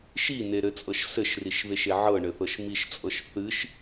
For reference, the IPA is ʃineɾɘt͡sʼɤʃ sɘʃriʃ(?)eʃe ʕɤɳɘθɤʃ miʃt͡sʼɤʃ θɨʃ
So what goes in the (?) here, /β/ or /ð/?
β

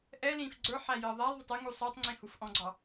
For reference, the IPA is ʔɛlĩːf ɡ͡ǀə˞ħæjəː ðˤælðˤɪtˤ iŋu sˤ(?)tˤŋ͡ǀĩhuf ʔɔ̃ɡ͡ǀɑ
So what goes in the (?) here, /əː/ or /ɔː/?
əː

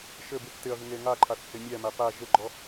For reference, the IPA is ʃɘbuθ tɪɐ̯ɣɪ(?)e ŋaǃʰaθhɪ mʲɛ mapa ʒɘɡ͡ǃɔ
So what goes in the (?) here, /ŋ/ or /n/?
ŋ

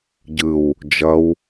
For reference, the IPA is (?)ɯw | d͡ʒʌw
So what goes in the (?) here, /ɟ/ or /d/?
ɟ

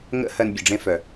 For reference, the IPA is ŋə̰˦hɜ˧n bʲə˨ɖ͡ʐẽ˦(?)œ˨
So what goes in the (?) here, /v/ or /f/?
f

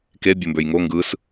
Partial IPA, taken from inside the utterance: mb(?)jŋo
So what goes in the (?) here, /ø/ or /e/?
ø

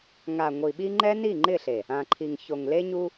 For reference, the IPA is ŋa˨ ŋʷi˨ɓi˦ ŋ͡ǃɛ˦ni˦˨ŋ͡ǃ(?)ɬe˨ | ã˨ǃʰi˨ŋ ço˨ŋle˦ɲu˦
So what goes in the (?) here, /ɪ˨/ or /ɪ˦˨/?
ɪ˦˨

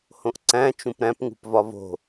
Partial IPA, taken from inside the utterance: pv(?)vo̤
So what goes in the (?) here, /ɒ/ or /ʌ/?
ɒ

